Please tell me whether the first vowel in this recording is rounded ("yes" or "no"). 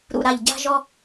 yes